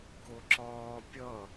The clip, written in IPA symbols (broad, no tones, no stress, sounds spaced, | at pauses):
k ʊ ǁ ɒː pʲ ʌ